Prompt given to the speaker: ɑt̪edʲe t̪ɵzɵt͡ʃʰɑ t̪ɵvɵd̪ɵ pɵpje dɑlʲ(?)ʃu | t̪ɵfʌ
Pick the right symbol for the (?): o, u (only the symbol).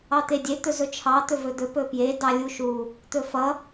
u